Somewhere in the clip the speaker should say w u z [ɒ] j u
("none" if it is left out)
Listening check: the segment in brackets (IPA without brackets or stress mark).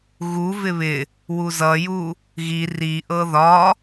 ʌ